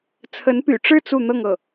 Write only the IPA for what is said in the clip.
t͡sʰ ə˧˥ n p y̰˨˩ ʈ͡ʂ ɻ̩˥˧ t͡s u˥˧ n̪ ɤ˥˧ ŋ ɤ˥˩

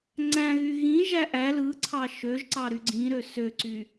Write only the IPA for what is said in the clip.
ŋ͡ǀ æ̃ ɣ y ɣ ĩ ʒ æ ʔ æ l ɯ ǀʰ ɑ ʃ ø ʒ ǀ ɑ ɾ y ɡ͡ǀ ĩ ɾ ø s ø ǀ y

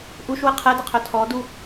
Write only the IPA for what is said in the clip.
ʔ u ʃ w ə qʰ ɛ d ə qʰ œ tʰ ɔ d u

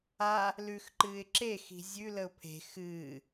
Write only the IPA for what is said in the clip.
a | l ʉ x ǃ ɨː ɪ̯ ǁ e x i̤ zʲ ʉ l ə ʊ̯ pʰ e̤ x ɨː

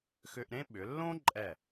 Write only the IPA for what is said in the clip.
x ʏ˧ ʔ ɾ ẽ˥ ɓ ʏ˩˧ lː õ˥ ǃʼ ɛ˧˩

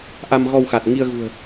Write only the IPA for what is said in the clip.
ʔ a˧ m ɣ ɔ˧ w x a˨˩ t̚ ŋ i˧ ə̯ ɣ ṳ˨˩ ə̯

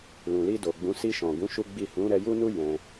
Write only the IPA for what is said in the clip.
l ũ˨ l i˧ d o˨ ɡ͡b ũ˨˦ s i˧ ʃ ɔ̃˨ ɡ ũ˨˦ ʃ u˦ ɡ͡b i˦˨ h ũ˨˦ ɾ ɛ˧ j u˦ n u˦ j ɛ̃˧

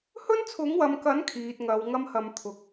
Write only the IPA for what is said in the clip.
h ɵ˥ n t͡sʰ ʊ˨˥ ŋ w ɐ˨ m k ɐ˨˥ n kʰ iː˨ t̚ ŋ ɐ˨˧ w ŋ ɐ˥ m h ɐ˧ m t̪ʰ ʊ˨˥ k̚

